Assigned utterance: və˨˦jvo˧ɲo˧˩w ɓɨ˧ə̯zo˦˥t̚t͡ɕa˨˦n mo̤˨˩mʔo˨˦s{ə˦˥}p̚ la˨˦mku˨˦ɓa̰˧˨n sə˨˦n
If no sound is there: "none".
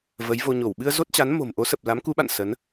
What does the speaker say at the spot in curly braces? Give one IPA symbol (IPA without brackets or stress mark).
ə˨˩